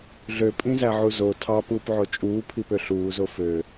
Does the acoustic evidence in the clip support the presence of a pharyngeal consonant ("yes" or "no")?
yes